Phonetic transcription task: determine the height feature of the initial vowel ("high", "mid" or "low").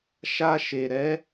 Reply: low